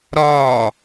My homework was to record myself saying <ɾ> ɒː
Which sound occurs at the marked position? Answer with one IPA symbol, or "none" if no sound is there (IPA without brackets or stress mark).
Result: ɾ